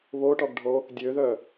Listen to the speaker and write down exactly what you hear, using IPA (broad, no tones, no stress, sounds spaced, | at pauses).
β o ʈ ɔ ɡ ɖʱ o | dʲ ø ð œ